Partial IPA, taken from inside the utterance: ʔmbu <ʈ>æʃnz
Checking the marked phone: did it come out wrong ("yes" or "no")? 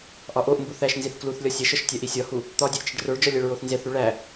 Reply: yes